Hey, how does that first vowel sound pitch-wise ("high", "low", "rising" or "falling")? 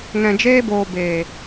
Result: low